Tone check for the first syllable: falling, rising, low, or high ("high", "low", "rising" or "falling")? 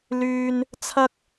high